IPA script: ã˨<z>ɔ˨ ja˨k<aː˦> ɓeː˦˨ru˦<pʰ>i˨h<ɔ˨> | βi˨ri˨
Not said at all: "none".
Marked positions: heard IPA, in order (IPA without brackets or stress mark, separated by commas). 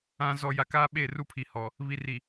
z, aː˦, pʰ, ɔ˨